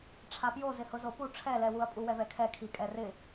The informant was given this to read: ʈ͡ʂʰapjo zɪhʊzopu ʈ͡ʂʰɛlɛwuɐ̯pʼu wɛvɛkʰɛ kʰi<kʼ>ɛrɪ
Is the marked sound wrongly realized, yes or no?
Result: no